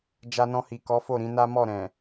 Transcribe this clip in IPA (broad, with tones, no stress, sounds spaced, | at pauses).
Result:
d͡ʒ a˧ n ɔ̃˧ h i˨ k ɔ˨˦ f o˦˨ ɾ ĩ˨˦ n a˦ m ɔ˦˨ ɾ ɛ̃˨